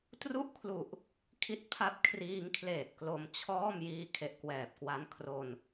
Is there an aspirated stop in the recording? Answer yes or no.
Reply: yes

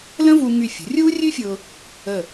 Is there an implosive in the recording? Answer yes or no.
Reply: no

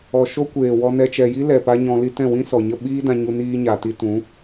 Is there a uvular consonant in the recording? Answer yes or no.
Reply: no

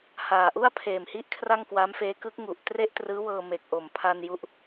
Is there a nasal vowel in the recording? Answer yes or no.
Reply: no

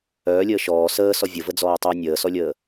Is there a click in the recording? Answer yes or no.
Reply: no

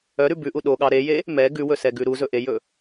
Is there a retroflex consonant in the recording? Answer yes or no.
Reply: no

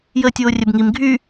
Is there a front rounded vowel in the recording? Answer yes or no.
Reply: yes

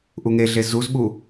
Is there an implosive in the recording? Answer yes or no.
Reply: yes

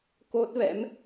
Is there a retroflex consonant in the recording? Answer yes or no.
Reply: no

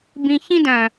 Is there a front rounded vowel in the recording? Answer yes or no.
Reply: yes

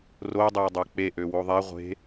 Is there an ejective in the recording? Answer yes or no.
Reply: no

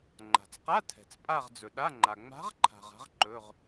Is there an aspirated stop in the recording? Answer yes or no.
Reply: yes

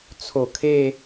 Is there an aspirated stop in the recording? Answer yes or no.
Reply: yes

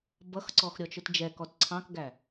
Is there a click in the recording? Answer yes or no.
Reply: yes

